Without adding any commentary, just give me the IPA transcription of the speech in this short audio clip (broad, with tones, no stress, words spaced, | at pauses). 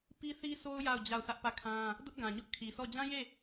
pi˦θi˦sʰo˦ʊ̯ ja˦˨ʊ̯ d͡ʑa˦˨ʊ̯sä˦ʔpä˦˨kʰã˦ | dʊ˦ʔɡã˨ɲʊ˦ʔ kʰi˨sʰɔ˦˨ d͡ʑã˦je˦˨